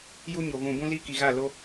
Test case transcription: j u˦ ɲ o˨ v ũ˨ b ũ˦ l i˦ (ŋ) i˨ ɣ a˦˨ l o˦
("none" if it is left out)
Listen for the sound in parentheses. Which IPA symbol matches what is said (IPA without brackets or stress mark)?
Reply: k